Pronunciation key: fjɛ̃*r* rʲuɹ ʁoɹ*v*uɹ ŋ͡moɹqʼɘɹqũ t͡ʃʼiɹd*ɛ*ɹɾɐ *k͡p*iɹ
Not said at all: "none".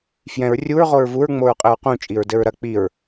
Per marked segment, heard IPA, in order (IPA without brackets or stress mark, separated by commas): ɹ, v, ɘ, k͡p